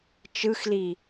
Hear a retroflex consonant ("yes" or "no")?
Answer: no